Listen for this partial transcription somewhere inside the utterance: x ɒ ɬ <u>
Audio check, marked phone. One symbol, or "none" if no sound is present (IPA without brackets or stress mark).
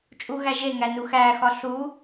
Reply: u